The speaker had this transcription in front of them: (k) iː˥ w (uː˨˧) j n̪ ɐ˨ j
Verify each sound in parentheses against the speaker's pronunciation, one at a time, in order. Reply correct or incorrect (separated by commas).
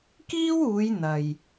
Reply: correct, correct